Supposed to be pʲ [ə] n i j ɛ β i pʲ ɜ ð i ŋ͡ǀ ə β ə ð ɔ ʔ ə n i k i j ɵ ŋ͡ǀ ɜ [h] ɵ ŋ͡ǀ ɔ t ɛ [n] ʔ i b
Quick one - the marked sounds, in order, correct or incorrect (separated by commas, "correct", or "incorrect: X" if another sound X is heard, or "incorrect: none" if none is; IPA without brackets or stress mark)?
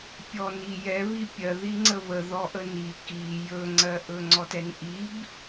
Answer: incorrect: ɔ, incorrect: ʔ, correct